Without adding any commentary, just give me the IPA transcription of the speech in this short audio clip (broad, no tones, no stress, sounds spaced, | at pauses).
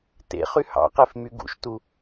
t ḛ χ y h ɑ̰ q e f m y ɡ ṵ ʃ t u